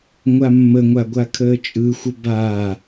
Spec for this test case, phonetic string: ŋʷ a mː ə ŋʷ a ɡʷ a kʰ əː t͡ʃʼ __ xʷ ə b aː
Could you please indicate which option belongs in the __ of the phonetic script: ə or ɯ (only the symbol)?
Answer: ɯ